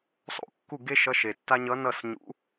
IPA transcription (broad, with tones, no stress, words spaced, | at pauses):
sˤo̰˥˩kːu˥˩ɡe˥ ʃʌ˧˥˧ʃe˨tːa˥ ɲʌ˧˥nʌ˥˩s ɲṵ˧˥